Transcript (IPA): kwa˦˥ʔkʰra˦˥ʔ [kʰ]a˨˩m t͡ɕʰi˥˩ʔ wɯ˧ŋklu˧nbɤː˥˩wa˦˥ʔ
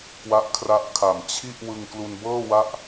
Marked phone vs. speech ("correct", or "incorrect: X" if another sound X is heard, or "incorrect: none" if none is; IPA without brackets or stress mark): correct